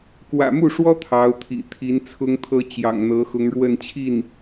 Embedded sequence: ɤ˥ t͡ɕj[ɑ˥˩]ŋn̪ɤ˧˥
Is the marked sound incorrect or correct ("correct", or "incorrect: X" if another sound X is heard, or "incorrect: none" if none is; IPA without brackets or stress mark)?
incorrect: ɑ̰˨˩